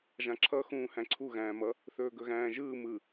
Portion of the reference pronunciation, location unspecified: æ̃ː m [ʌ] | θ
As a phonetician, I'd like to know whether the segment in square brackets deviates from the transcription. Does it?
no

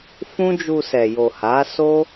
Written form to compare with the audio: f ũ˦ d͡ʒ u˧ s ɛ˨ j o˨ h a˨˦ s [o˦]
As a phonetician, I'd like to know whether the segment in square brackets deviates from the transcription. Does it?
no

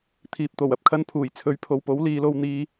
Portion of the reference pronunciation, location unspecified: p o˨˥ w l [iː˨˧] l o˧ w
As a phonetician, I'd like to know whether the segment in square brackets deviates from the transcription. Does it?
no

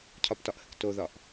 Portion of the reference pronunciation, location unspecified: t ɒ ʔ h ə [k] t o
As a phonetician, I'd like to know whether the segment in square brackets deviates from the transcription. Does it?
no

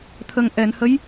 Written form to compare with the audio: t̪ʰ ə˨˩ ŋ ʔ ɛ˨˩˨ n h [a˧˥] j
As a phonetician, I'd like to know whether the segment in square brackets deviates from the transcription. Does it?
yes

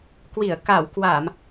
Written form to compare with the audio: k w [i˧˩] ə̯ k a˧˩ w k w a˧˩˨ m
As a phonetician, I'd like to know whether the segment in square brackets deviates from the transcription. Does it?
no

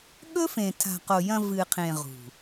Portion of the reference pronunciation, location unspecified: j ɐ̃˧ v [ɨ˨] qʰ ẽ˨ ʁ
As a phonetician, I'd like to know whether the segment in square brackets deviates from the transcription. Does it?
no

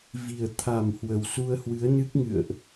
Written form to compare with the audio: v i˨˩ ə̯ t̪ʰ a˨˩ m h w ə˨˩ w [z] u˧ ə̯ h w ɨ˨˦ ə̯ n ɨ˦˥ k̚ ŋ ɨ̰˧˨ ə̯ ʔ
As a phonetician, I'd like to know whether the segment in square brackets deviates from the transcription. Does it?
yes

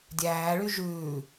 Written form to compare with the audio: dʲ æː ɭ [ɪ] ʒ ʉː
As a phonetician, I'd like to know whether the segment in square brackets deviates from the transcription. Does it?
yes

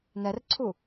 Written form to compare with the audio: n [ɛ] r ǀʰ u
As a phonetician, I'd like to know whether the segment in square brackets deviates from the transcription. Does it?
no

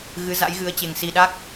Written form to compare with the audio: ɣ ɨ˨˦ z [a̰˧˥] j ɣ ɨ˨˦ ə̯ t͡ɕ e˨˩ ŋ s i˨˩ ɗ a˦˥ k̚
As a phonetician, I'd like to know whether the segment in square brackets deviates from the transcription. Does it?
no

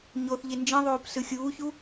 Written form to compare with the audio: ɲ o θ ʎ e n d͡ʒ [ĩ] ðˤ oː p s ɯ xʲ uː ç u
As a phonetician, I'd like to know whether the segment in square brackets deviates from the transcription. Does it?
no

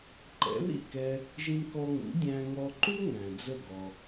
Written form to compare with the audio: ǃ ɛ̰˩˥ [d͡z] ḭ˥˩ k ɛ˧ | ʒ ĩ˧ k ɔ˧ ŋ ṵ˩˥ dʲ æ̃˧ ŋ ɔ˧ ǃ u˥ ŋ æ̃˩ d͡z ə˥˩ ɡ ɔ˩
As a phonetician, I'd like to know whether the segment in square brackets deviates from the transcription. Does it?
yes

